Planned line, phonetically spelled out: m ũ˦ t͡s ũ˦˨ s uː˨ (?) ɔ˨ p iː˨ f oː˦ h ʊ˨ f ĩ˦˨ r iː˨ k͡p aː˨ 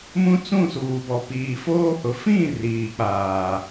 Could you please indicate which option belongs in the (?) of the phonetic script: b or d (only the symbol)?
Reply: b